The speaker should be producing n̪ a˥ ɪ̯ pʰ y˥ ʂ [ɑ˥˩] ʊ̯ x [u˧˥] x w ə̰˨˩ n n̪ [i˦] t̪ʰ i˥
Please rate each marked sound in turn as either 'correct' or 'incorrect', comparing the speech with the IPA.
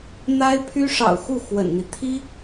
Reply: incorrect, incorrect, correct

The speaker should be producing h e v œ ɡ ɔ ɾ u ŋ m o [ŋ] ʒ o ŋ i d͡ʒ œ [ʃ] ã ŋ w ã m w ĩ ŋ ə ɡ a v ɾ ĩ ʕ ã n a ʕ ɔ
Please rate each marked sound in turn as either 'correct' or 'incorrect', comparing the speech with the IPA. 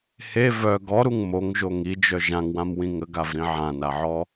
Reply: correct, incorrect

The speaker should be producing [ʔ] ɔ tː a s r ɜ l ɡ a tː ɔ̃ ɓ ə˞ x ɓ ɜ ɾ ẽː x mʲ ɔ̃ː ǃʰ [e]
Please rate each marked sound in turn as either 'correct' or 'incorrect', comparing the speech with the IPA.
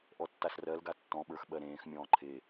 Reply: correct, correct

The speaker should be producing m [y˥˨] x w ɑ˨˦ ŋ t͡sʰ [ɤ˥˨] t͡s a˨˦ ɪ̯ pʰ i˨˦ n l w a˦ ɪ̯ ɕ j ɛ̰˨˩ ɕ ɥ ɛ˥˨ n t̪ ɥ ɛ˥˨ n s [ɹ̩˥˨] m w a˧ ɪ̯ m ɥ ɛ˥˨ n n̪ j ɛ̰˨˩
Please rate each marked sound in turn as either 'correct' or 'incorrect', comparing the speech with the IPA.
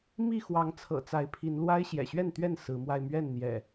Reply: incorrect, incorrect, incorrect

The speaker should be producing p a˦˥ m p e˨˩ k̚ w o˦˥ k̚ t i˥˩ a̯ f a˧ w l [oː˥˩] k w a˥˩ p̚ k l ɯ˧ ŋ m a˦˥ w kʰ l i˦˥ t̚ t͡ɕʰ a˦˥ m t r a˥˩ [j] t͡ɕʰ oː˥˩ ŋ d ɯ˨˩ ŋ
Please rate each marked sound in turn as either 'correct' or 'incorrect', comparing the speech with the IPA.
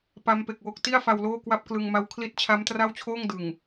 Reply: correct, incorrect

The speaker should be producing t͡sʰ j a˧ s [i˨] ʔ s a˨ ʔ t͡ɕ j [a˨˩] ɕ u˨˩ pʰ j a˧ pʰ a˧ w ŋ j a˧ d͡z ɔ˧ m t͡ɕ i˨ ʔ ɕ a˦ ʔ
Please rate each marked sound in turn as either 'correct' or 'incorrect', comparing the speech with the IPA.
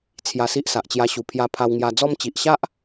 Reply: incorrect, incorrect

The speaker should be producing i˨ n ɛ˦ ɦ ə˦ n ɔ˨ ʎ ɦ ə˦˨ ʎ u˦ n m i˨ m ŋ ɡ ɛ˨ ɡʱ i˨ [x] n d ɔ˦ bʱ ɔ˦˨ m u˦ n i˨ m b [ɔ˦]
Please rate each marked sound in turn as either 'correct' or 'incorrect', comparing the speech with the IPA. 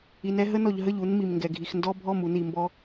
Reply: correct, correct

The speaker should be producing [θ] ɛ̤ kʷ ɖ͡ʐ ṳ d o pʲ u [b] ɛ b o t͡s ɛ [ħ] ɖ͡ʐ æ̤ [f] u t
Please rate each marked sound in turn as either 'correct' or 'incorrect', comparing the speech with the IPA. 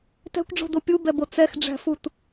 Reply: incorrect, correct, incorrect, correct

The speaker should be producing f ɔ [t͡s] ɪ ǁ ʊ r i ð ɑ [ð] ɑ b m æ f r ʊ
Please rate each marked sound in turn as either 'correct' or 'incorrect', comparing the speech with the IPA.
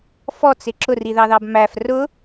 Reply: correct, correct

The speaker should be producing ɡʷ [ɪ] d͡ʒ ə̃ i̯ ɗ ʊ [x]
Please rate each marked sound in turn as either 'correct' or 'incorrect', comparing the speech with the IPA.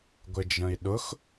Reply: correct, correct

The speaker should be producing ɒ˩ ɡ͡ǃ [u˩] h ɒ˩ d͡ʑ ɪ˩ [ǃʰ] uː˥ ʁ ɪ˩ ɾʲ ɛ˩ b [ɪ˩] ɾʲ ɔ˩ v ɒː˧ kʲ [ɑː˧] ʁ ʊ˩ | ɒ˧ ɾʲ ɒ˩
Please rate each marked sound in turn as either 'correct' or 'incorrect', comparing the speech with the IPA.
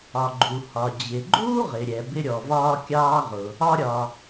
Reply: correct, incorrect, incorrect, correct

